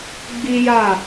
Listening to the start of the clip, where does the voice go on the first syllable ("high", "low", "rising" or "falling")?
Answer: high